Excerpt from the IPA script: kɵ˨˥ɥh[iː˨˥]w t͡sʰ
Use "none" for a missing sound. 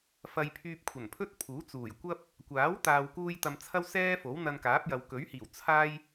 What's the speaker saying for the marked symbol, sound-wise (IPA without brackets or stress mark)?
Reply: iː˨˩